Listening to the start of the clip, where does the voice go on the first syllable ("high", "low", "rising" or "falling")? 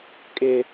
high